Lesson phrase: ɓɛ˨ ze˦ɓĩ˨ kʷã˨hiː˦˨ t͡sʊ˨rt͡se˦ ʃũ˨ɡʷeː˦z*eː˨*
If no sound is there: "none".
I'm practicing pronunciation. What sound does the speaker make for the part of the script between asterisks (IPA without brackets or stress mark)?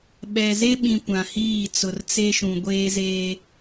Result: eː˦